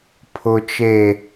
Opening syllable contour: low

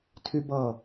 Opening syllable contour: high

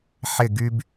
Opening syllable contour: falling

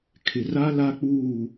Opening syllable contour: low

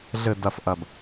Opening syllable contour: low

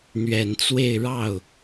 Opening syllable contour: low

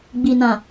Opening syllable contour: low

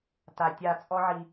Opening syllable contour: low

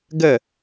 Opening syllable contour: falling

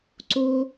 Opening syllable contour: high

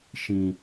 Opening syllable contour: low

